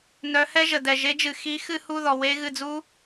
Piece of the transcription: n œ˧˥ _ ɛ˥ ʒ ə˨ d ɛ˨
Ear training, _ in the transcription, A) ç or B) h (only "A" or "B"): B